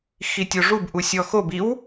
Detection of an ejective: absent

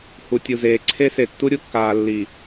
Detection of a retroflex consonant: absent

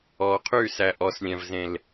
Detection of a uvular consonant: present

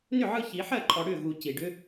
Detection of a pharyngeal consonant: present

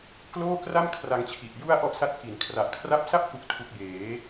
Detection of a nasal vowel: absent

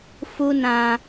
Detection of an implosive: absent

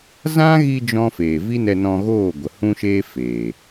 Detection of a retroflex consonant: absent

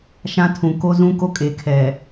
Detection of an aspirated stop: present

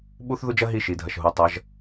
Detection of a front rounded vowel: absent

